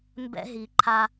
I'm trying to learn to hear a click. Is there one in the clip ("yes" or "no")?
yes